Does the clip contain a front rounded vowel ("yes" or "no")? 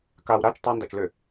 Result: yes